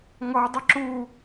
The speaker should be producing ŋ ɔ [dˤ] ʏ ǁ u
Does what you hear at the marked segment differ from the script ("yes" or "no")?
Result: no